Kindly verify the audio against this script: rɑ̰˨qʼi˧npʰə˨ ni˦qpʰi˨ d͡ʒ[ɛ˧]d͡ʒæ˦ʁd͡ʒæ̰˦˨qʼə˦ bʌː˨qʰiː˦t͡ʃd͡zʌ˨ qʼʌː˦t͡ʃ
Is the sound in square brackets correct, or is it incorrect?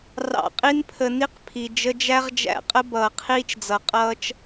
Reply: incorrect